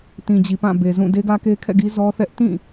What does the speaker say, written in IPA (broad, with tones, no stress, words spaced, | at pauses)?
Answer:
tĩ˨d͡ʑi˨pã˦˨ be˨zũ˦˨ de˦ɡä˦ke˦kʰɛ̰˦˨ ɡi˦ zɔ˦θɛ˦ʔ tĩ˦˨